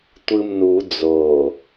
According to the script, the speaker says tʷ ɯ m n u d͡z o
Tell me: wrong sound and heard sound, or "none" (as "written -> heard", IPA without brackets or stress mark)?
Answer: none